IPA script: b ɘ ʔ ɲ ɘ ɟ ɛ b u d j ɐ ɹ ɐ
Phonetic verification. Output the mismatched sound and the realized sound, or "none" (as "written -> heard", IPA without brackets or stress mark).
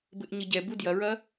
none